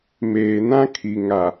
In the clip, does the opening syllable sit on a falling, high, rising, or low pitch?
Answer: low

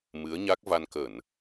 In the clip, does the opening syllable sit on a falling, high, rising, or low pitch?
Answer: rising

